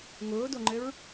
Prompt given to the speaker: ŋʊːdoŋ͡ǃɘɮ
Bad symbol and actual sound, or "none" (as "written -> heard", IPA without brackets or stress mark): ɮ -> ɹ